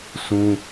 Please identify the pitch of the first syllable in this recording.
high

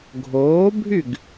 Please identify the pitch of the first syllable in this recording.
rising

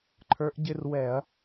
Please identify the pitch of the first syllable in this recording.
rising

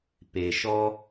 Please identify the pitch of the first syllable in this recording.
low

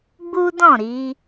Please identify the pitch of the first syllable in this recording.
high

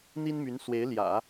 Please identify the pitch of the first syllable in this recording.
high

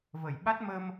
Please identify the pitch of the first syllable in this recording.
low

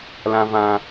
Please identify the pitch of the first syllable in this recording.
low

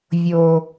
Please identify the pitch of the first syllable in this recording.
low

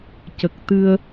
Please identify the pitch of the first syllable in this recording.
low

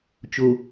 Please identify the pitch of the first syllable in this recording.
low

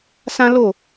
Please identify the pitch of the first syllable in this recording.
high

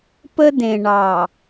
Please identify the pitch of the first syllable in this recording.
high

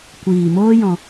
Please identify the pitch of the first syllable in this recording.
low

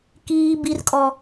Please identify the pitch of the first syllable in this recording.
high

